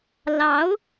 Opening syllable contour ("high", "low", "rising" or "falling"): rising